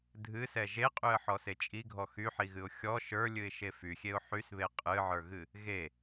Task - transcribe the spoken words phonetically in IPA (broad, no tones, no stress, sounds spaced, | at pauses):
dʱ ɨ s ɛ ʒ e qʼ y ə̯ ħ ɔ s e t͡ʃʼ i ɡʱ ɔ x y ħ i ɣ ɨ ʊ̯ xʲ ɔ ʃ ə˞ lʲ ɨ ɪ̯ ʃ e f y xʲ e ʊ̯ ħ y s β e qʼ ɨ ʕ ə˞ ɣ ɨ | ɣ e